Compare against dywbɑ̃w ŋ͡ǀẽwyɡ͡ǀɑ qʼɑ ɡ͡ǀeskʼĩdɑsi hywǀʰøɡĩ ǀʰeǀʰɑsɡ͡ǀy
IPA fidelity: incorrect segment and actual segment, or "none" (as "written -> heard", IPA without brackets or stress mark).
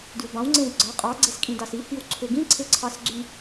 none